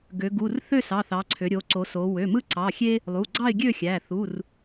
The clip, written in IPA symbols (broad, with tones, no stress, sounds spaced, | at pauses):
ɡ ø˩˧ ɡ u˩˧˩ r θ ø˥˨ s ɑ˩˧˩ θ ɑ˩˧ ǀʰ ø˩˧ ɾʲ o˩˧ ǀ o˩˧ s o˩˧ w ø˩˧˩ m ɯ˦ ǀ ɑ˩˧˩ xʲ e˦ | lˠ u˩˧˩ ɡ͡ǀ ɑ˥˨ ɪ̯ ɡʲ ø˥˨ xʲ æ˩˧˩ θ u˩˧˩ r